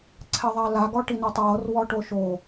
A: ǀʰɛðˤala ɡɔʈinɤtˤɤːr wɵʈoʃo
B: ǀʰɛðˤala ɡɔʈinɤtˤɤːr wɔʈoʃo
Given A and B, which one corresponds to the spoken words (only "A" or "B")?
B